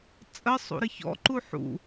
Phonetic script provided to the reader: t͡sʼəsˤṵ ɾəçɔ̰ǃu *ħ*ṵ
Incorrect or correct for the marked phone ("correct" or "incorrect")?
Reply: correct